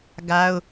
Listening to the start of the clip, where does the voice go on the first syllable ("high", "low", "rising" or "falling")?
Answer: high